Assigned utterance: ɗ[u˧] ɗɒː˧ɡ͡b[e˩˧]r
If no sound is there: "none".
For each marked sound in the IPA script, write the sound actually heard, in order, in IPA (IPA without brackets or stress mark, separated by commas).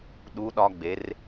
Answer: u˧˥, e˩˧